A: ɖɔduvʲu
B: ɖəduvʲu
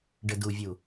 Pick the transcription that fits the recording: B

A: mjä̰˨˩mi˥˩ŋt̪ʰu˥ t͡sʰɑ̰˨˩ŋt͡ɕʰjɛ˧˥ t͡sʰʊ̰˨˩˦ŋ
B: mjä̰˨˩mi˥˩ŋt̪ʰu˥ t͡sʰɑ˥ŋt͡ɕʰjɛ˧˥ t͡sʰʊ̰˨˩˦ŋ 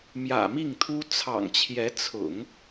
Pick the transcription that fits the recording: A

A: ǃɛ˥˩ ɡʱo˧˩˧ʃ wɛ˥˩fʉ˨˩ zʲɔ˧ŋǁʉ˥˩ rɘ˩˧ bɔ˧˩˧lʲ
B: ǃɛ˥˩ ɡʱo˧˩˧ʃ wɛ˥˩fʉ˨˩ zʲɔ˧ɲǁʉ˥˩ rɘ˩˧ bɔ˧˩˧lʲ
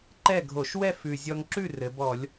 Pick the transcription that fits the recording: A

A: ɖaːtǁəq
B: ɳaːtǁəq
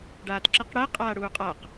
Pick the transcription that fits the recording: A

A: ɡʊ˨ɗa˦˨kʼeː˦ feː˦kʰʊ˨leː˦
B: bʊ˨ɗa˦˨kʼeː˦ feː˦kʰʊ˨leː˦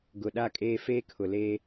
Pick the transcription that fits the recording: A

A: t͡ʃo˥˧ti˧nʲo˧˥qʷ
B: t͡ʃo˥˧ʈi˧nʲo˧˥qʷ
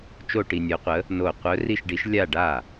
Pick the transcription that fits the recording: B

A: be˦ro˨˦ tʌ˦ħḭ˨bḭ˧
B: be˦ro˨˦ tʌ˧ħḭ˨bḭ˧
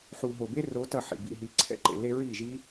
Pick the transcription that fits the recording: B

